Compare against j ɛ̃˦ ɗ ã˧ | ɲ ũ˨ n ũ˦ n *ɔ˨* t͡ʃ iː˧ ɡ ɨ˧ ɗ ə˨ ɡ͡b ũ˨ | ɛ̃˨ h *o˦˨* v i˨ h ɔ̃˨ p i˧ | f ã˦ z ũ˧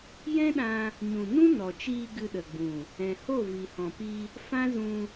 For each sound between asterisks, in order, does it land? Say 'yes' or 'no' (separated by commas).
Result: yes, yes